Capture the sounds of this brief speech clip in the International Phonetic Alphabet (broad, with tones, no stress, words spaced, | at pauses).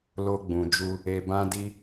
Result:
lo˧ɡ͡bũ˨d͡ʒu˧ | e˧bã˦di˦